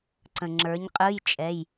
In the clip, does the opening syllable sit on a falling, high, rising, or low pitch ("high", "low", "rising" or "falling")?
low